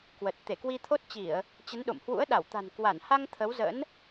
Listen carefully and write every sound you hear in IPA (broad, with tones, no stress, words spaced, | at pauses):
kwə˨˩t̚ t̪e˧˩kwi˧t̪ʰo˦˥t̚t͡ɕi˧˩˨ə̯ | t͡ɕə˨˦nɗo̰˧˨mhwṵ˧˥ə̯ ɗa˧˩wt̪a̤˨˩n kwa˧˩nha˧ŋ t̪ʰə˨˦wzə̰˧˥n